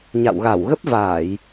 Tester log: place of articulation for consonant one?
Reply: palatal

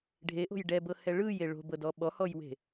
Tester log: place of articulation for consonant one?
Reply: retroflex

